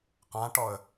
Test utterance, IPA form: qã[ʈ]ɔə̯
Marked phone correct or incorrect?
correct